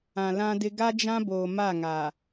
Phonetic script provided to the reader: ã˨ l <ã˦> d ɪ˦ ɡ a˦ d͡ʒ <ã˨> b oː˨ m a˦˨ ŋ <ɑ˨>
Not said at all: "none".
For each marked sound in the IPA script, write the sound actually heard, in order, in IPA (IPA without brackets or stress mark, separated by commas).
ã˦, ã˦, a˨